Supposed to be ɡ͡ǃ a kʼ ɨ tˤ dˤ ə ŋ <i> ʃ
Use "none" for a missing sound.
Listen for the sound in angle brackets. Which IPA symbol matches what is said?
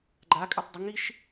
i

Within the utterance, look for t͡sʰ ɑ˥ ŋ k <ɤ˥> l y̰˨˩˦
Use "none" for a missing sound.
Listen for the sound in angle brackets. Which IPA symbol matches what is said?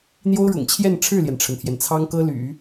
ɤ˥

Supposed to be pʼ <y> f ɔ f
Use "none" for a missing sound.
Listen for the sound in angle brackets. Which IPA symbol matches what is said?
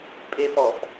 e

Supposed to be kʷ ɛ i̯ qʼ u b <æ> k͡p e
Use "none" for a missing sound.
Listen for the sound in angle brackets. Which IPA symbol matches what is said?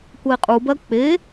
ɜ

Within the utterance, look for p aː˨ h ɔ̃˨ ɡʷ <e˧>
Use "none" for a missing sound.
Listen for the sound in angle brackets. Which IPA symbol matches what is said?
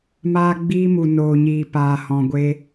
e˧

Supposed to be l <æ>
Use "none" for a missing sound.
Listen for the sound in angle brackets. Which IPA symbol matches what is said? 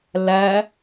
æ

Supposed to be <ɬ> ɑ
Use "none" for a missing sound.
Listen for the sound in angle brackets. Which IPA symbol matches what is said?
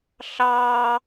ɬ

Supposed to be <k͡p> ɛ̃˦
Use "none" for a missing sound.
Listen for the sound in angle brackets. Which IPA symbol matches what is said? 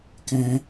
k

